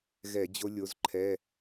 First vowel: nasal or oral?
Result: oral